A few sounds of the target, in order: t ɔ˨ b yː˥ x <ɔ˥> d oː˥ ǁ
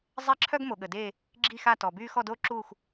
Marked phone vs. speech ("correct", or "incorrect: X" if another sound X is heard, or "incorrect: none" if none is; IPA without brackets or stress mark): incorrect: ɔ˥˧